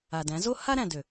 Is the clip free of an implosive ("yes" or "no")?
yes